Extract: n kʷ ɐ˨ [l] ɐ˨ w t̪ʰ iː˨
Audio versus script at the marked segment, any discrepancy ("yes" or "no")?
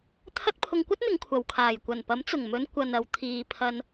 yes